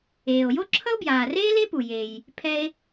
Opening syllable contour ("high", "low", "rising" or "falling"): low